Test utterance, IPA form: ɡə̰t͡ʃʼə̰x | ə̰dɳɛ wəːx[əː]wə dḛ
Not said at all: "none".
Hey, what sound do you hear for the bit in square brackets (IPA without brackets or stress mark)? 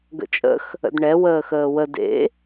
əː